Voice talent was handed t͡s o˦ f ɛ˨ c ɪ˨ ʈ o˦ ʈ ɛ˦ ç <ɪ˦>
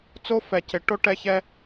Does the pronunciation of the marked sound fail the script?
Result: yes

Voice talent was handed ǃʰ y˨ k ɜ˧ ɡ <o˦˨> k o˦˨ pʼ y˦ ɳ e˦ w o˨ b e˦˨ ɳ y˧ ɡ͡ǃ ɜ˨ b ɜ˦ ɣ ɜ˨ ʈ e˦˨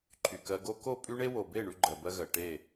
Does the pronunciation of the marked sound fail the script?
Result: yes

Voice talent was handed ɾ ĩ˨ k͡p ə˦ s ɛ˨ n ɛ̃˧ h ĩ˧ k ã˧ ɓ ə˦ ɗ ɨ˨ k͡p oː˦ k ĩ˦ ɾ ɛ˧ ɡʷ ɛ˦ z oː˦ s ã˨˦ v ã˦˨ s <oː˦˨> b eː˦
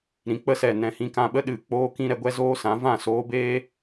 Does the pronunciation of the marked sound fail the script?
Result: yes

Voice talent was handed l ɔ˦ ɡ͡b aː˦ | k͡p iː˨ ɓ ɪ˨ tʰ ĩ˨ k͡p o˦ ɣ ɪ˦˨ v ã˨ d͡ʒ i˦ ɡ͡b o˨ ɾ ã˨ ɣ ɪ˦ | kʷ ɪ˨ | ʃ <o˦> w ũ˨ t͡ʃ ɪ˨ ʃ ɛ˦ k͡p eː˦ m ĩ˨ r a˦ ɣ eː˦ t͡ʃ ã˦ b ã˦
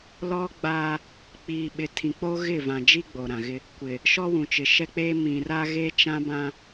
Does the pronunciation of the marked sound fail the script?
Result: yes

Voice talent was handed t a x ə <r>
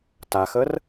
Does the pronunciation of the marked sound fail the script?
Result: no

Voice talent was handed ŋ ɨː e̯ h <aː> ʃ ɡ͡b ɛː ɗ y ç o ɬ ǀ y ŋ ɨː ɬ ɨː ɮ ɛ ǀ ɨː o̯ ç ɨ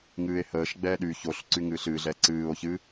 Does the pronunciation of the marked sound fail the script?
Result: yes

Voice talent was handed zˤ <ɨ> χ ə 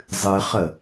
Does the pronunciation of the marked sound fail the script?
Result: no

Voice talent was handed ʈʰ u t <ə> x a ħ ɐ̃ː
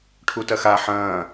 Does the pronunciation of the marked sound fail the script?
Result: yes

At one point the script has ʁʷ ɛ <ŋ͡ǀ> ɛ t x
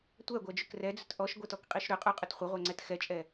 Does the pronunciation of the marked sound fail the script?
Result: no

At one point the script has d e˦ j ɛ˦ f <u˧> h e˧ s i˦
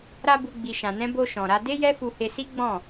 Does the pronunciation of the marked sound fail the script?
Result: no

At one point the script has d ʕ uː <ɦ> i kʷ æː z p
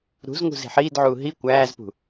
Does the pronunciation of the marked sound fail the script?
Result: no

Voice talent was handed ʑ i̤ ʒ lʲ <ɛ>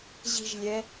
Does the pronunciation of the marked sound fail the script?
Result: no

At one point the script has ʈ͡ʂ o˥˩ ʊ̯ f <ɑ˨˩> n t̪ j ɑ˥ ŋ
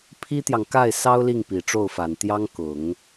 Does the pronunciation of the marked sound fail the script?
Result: yes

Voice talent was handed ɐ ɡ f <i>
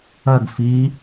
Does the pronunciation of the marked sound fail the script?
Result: no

